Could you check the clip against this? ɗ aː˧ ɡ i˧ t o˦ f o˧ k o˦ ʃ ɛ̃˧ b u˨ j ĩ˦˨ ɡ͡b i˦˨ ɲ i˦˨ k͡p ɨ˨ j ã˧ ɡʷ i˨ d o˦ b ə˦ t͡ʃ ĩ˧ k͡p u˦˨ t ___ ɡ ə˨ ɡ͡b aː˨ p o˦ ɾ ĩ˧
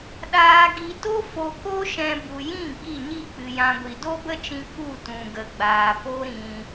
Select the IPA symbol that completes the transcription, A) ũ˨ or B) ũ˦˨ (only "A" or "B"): A